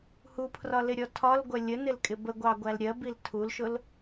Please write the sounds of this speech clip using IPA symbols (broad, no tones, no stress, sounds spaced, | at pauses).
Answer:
h u pʰ r ɒ l ɪ ɾʲ ɔ tʰ ɒ l ɡʷ ɜ lʲ ə n ɪ l kʼ ɪ b ə ɡʷ ɑ ɡʷ æ l ɾʲ ɜ b i l tʰ u l ʃ ʊ l